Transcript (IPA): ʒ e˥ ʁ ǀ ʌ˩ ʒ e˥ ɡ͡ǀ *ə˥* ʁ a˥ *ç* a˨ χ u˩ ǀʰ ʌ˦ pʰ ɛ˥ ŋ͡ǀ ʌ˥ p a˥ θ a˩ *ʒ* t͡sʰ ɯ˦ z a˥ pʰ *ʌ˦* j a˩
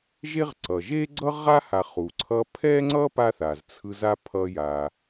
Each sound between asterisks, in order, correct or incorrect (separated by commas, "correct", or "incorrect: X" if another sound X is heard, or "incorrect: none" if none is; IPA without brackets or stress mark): incorrect: ʌ˥, incorrect: h, incorrect: z, correct